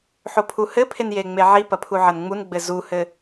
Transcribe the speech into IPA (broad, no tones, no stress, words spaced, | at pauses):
ħopʰuhɘpʰen jeŋ͡meʕipɐ pʰuʕɐnŋ͡munɡ͡bɘ zuhɘ